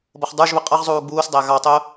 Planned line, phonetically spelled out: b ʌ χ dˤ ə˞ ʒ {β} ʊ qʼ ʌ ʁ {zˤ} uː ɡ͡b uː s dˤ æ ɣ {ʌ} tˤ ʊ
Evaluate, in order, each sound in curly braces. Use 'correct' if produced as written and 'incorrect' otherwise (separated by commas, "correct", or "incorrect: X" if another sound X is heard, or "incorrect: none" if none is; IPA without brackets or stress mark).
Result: correct, correct, incorrect: ɑ